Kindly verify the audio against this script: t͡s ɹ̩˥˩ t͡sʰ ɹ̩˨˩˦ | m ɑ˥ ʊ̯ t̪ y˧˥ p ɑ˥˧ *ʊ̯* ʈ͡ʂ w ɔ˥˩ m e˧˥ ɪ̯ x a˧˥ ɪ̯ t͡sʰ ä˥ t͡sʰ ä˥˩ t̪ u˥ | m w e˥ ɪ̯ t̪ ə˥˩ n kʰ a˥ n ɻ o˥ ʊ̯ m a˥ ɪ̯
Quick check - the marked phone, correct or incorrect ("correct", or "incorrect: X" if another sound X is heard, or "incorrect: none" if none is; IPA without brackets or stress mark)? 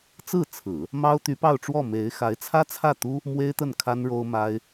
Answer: correct